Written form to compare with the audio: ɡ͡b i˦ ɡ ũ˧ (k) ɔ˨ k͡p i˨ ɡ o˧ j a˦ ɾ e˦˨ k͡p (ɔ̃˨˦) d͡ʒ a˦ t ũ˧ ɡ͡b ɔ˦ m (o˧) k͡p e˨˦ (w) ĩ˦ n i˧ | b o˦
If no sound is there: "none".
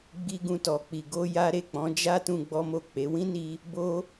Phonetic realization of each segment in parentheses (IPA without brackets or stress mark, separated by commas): t, ɔ̃˨˦, o˦˨, w